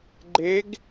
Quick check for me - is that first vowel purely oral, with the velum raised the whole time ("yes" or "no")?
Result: yes